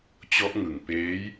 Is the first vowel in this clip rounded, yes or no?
yes